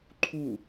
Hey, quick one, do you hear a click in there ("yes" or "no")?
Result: yes